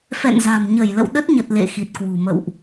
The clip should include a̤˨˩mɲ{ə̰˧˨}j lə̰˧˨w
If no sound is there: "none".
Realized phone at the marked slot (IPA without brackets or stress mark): ə˧˩